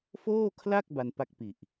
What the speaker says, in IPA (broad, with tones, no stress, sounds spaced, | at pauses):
f oː˥˩ kʰ l a˥˩ k̚ b a˧ n p a˥˩ k̚ p i˨˩ ʔ